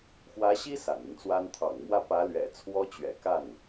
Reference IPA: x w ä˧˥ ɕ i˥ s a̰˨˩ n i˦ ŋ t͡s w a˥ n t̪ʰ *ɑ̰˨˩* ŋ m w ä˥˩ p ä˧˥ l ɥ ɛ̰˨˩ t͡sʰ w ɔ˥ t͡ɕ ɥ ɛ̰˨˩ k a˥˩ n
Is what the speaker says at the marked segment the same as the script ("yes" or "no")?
yes